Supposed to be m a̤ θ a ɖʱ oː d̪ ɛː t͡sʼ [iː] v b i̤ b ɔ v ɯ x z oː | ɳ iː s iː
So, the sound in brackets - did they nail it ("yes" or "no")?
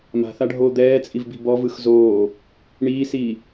no